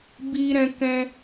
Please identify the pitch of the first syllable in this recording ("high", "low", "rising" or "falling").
high